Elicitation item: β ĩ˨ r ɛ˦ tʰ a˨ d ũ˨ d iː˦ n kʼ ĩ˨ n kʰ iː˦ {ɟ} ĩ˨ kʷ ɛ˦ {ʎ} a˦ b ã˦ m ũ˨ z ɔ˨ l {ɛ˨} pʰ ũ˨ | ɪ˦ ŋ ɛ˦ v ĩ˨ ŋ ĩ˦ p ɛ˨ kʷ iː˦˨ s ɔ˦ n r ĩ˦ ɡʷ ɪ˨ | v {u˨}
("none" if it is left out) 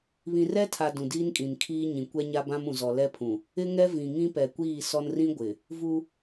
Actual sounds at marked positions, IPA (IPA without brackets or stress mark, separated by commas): ɲ, ɲ, ɛ˦, u˦